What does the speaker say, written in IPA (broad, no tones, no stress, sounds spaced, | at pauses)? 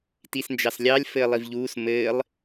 t i s n d͡ʒ ɑ s lʲ ɑ lʲ f ɘː lˠ i v ʎ uː s m ɘː lˠ